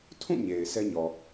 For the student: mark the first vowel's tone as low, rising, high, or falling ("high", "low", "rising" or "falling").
falling